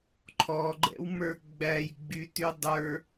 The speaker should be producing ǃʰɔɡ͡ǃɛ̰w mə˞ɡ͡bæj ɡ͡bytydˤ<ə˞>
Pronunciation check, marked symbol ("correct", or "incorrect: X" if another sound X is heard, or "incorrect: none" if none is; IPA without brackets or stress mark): correct